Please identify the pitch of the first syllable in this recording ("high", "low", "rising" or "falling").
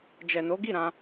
low